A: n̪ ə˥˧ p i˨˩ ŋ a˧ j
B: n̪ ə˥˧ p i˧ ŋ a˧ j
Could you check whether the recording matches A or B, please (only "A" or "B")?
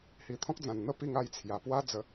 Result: B